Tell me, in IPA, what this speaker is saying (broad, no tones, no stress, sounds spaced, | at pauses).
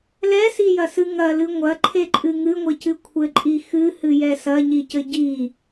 l ɛ s i j ɐ s ɨ ŋ ɐ l ɨ ŋʷ ɐ ǃʰ e ǃʼ ɨ ŋ ɨ ŋʷ ɘ c ɨ kʷʰ ɘ ǃʼ i x ɨ h ɨ j ɛ s ɐ ɲ i c ɘ ɟ i